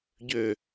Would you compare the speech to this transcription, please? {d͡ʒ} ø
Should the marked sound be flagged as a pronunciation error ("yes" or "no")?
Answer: yes